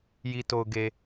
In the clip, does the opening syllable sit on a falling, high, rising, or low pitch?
low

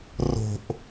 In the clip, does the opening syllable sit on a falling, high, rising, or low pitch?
low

